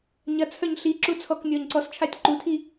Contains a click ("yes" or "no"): yes